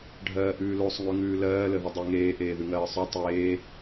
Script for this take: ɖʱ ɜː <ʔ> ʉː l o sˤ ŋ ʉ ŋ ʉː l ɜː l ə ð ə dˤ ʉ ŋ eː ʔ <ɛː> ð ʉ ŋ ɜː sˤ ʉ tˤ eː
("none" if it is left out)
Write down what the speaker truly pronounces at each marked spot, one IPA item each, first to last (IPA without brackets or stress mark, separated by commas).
ʔ, eː